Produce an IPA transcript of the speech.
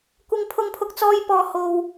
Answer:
kʷ ɪ˧ ŋ pʰ ʊ˧ ŋ pʰ ʊ˧ k̚ t͡s ɔː˧ j p ɔː˨ h o˨ w

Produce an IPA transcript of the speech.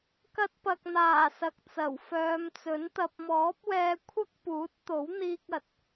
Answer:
k ɐ˧ t̚ p ɐ˨ k̚ n̪ aː˨˩ s ɐ˨ k̚ t͡s ɐ˨˩ w f œː˨˧ m t͡s ɵ˨˥ n t̪ ɐ˧ p̚ m ɔː˨˥ p̚ w ɛː˧ kʷʰ ɐ˥ k̚ p uː˨˥ t̚ t̪ o˨˥ w n̪ iː˥ k̚ ɐ˨ t̚

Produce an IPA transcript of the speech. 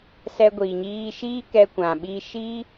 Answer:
s ɛ˧ ɡʷ iː˨ ɲ iː˧ ʃ iː˦ k ɛ˧ kʷ ã˨ ɓ iː˧ ʃ i˦

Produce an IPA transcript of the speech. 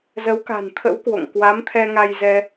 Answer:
z ə˨˦ w k a̤˨˩ n t̪ʰ ə̰˧˥ w k w o̰˧˨ ŋ k w a˨˦ m t̪ʰ ɛ˧ ŋ a˧ j z ɛ˧

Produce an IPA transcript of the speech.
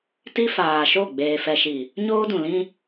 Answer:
t i˦ f aː˨ ʃ o˦˨ ɡ͡b eː˨ f ɛ˨ ʃ i˨ | ɲ oː˦ d ũ˨ l ĩ˦

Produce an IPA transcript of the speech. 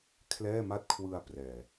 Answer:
kʰ l ɛː˥˩ m a˥˩ t̚ kʰ w ɯ˧ a̯ p r ɛː˨˩

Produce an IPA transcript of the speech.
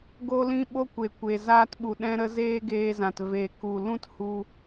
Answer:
ɡ o˧ l ĩ˧ ɓ o˦ kʷ e˨ kʷ e˨ z aː˧ t ɓ u˨ ɗ ɛ̃˧ ɾ ə˧ z eː˦ ɡ eː˧ z ã˨ t v e˨ k u˨ l ũ˦ t h u˧

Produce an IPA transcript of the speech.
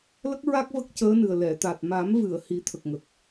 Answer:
l ə˦˥ k̚ ɹ a˦˥ k̚ v ə˦˥ k̚ c əː˧˥ n ɨ˨˩ ə̯ l ɛ˨˩˨ t̪ a˨˩ t̚ m a˨˩˦ m v ɨ˨˩˨ ə̯ h i˨˩˦ t̪ʰ ə˨˩ k̚ ŋ ə˨˩ k̚

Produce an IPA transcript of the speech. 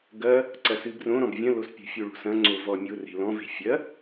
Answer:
ɡ ɐ | ǀ ɐ s ɨ b r õ ɾ ɔ̃ b vʲ ɐ̃ l o s pʲ o̤ fʲ o ɭ o̤ s ɐ̃ ŋ͡ǀ o v ɔ mʲ o r e̤ l ɔ̃ v e̤ fʲ ɐ

